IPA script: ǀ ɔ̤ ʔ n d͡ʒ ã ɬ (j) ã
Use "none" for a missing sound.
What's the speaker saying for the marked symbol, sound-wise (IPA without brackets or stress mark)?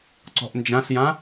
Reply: j